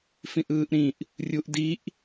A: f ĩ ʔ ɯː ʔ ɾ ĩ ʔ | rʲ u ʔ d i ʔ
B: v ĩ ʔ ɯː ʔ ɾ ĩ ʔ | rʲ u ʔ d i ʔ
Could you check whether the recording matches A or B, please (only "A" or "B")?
A